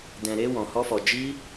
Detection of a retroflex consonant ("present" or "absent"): absent